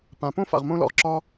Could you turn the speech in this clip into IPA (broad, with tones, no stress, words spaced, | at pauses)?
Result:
pã˨ põ˥fa̰˨ʁmõ˦ lɔ̰˨ʁǁɒ˦